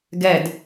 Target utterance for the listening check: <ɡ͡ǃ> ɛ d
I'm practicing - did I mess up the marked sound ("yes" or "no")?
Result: yes